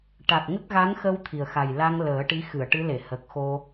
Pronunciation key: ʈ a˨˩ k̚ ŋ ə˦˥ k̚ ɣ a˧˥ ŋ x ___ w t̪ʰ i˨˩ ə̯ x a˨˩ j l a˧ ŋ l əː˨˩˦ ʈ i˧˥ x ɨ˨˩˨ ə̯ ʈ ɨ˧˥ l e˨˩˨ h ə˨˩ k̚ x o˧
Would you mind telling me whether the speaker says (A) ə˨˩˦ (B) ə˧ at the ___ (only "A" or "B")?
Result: B